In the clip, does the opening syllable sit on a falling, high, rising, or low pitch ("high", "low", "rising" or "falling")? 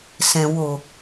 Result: low